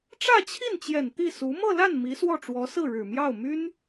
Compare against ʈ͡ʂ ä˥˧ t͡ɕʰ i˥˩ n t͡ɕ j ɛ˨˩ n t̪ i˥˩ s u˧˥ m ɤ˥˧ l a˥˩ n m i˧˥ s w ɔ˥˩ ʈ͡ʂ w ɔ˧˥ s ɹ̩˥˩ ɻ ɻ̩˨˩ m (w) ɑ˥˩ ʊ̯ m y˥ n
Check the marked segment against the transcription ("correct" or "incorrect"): incorrect